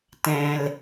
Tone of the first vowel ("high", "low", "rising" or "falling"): low